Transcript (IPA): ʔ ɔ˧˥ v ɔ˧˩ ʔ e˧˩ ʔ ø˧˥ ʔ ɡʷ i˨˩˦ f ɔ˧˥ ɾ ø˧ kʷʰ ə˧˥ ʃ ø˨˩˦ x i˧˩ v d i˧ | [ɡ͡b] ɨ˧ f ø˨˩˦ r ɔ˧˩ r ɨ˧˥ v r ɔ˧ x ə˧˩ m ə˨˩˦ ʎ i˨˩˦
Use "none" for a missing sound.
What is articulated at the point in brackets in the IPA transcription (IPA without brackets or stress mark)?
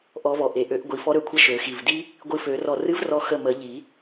ɡʷ